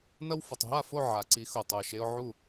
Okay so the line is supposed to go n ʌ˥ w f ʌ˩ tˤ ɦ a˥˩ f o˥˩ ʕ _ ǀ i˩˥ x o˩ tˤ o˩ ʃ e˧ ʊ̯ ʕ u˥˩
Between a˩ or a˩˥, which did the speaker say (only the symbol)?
a˩